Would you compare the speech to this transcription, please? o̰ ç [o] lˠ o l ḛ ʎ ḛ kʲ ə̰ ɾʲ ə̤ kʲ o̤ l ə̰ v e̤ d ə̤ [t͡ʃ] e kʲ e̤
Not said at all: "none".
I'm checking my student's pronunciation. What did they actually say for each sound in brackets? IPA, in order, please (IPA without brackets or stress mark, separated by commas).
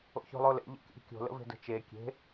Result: o̤, t͡ʃ